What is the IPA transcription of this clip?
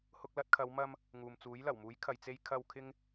h ʊ˧ k̚ l ɐ˧ t̚ kʰ ɐ˨˧ w m ɐ˧ m | ŋ uː˨ m t͡s uː˨˥ j l ɐ˨˩ w m uː˨˥ j kʰ ɐ˨ j t͡s e˧ j kʰ ɐ˧ w kʰ ɪ˥ ŋ

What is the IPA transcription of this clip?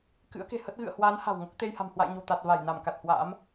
k ɨ̰˧˥ ə̯ k e̤˨˩ h ə˦˥ t̚ ɣ ɨ̰˧˨ ə̯ h w aː˨˦ n h a̤˨˩ w ŋ o˦˥ k̚ t̪ e˧ j h a̤˨˩ m h w a̰˧˨ j ɲ o̤˨˩ t̪ a˨˩ t̚ v a˧˩ j n a˧˩ m k a˨˩ t̚ h w a̰ː˧˥ m

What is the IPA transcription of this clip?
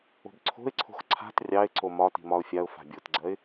o̤ b ǀʰ o̤ ɪ̯ ǀʰ o̤ x ǀʰ a̤ t rʲ ɑ ɪ̯ ǀ o m ɒ t i̤ m ɒ ʊ̯ fʲ a ʊ̯ f a̤ bʲ o t ɡ͡ǀ ɜ ɪ̯

